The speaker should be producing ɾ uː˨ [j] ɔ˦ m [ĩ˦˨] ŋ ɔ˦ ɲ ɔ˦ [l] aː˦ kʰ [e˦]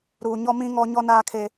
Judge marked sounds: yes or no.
no, no, no, yes

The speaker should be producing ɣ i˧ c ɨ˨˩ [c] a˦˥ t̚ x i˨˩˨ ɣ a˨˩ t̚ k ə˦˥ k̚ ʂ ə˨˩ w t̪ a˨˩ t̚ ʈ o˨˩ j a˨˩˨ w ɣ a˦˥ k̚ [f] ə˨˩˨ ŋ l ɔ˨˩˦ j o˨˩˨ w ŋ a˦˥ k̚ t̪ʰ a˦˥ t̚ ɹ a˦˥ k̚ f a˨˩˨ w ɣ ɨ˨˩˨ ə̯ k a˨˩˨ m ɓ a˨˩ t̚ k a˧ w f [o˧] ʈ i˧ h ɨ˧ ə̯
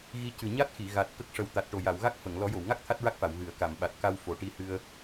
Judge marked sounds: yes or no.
no, yes, no

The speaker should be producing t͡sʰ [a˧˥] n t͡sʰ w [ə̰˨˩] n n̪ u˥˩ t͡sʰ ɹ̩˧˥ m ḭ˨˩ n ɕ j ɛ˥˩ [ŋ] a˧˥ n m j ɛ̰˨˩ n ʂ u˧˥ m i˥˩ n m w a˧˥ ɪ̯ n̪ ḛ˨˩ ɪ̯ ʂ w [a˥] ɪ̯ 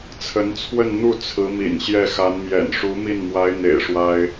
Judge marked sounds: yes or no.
no, no, no, yes

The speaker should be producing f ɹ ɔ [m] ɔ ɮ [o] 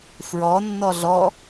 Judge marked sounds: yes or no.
no, no

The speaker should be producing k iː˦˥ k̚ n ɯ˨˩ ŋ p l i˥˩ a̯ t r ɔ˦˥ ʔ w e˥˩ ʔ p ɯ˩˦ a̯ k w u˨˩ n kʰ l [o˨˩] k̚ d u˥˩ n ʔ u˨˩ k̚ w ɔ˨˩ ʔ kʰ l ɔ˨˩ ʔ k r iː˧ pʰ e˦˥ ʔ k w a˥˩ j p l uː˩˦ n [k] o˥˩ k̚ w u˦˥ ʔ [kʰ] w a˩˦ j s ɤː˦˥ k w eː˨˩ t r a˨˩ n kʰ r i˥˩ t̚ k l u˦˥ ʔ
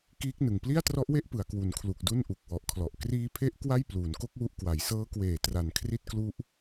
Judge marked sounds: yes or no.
no, yes, no

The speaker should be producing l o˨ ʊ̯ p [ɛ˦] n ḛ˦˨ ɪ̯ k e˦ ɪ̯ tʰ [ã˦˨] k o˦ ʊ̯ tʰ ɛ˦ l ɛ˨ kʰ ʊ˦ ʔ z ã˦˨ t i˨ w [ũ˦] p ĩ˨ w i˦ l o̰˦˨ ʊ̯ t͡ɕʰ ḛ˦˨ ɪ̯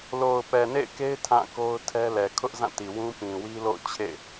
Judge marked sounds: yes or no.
no, yes, yes

